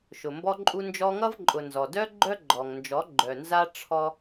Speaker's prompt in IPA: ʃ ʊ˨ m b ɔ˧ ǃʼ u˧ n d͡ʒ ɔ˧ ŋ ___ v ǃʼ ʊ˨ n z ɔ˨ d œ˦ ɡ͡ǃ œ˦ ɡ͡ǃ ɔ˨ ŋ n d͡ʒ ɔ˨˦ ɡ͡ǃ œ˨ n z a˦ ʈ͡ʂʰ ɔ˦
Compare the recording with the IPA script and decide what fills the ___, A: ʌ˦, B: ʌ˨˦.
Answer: A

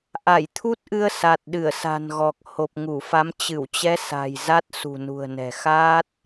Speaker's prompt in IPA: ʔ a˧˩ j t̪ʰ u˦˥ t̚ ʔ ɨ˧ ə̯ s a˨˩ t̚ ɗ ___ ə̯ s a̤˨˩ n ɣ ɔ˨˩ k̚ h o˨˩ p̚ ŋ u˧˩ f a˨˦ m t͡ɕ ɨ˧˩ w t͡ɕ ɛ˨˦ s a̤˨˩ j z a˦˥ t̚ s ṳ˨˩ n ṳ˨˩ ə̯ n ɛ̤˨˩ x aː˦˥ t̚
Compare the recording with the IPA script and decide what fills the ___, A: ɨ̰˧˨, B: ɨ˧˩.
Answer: B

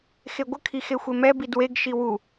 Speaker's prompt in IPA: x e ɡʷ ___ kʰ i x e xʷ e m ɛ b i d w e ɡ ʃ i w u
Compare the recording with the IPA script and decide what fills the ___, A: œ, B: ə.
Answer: B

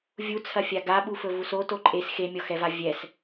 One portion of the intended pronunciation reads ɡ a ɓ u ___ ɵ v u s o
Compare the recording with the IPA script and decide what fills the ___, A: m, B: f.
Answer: B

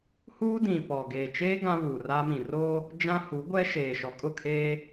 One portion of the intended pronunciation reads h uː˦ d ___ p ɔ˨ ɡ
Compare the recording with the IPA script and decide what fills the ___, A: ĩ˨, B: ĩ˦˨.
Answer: A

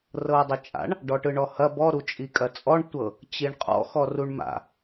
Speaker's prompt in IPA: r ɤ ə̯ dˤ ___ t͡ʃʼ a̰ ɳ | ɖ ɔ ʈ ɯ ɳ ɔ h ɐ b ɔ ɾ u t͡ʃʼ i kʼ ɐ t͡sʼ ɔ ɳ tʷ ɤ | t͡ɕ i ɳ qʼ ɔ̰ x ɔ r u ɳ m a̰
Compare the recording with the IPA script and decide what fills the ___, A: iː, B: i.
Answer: B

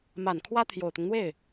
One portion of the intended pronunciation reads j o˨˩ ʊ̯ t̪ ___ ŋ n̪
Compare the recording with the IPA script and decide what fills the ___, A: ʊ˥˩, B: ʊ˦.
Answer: B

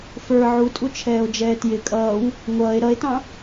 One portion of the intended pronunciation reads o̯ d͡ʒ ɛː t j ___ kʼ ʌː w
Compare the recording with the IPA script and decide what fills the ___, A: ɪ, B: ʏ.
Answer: A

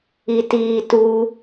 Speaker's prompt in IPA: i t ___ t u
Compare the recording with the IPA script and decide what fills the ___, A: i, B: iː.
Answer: B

